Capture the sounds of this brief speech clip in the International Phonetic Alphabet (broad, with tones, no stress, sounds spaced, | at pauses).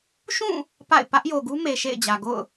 ʃ ũ˦˨ | p a̰˦˨ ɪ̯ p ä˦ ʔ j o˨ ɡ u˦ m e˨ ʃ ḛ˦˨ ɪ̯ d͡ʑ ä˨ ɡ o̰˦˨ ʊ̯